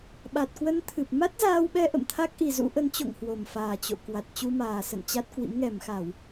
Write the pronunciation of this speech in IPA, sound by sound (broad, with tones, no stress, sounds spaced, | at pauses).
ɓ a˨˩ t̚ k w ə˧ n t̪ʰ ɨ˨˩ p̚ m a˦˥ t̚ z aː˧ w ɓ ɛ˧ ʔ ə̰˧˨ m t̪ʰ a˦˥ k̚ ʔ i˨˩ z ṵ˧˥ ʔ ə˨˦ n t͡ɕ o̰˧˨ ŋ h w o˨˩ m f aː˨˩ t͡ɕ o̰˧˨ k w a˨˩ t̚ t͡ɕ u˧ m aː˨˩ s ə̰˧˨ n t͡ɕ a˦˥ t̚ k w ḭ˧˥ m ŋ ɛ˧˩ m x a˧˩˨ w